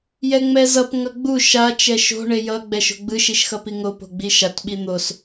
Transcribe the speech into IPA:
j ɛ ŋ͡m ɛ z ʌ p ŋ ʌ ɡ͡b u ʃ a t͡ʃ ɛ ʃ o̤ ɳ e j ʌ ɡ͡b ɛ ʃ o̤ ɡ͡b ɯ ʃ i ʃ x ʌ p i ŋ o p o̤ ɡ͡b i ʃ a t ɓ i n̪ o s

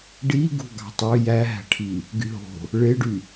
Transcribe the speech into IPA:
ɖ i ɡ ṳ ɡ ɑ̤ tˤ ø j æ ɦ æ̤ ʈʰ i | ɡ y ɦ o̤ | ɭ e ɖ y

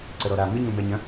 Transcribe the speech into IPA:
ǀ ə ɾ ɔ ɾ a m ɪ ɲ õ m ɛ ɲ ɐ̃

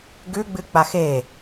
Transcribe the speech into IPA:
ɡ ʉ ɡ͡b ɨ k͡p a x e

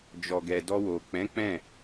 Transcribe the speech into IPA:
d͡ʒ ɔ˨ ɡ ɛ˨ d ɔ˧ w o˨ k͡p ɛ̃˨˦ k͡p ɛ̃˦˨

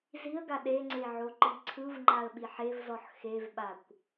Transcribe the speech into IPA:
z i ə̯ ɡ a ɗ e ŋ͡ǀ e ʕ o ǃ i ǀʰ ɯ v ŋ͡ǃ a ə̯ ɓ i ħ e v z ɔ ħ x e v ɓ a kʷ

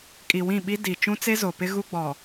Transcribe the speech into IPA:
kʼ i˨ w ĩ˦˨ ɓ i˦ d i˨ t͡ʃ ũ˦ t͡s e˦ z o˨ p ɪ˦ ɣ u˦ ɡ͡b ɔ˨

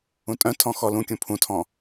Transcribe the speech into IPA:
ũ tʼ œ̃ tʰ ɔ̃ x ɔ l ũ kʲ ũ pʰ ũ tʰ ɔ̃

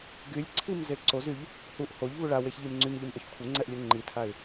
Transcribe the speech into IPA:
ɡ y lʲ ǀʰ i m z e ǀ o z y ʎ | h u ʔ h o ʎ v u ɭ a w e ç ʎ i m ŋ͡ǀ y m ʎ i m ʔ œ ç kʷʰ ə ŋ͡ǀ ɛ ʔ lʲ o ŋ͡ǃ i tʰ a ɪ̯

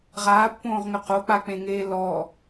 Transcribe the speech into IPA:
ʁ aː pː õː ʁ ŋ ʏ q o k͡p a k͡p ẽ ŋ eː l ɔ

